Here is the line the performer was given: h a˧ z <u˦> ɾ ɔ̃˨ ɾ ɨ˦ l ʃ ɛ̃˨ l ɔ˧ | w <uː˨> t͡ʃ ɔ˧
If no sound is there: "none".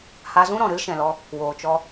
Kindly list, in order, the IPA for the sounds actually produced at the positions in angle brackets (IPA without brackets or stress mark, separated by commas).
ũ˦, oː˨